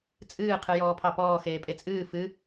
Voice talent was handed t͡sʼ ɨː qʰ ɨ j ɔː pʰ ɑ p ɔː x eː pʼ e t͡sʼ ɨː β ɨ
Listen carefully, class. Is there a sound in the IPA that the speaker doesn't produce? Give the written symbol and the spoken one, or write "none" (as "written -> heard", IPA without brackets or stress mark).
β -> f